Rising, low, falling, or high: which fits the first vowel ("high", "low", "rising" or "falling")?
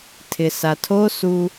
low